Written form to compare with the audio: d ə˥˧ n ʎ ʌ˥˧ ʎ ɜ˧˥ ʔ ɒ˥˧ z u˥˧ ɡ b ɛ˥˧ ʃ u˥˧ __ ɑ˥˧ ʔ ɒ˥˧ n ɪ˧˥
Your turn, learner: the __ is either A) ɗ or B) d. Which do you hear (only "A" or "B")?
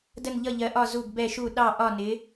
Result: A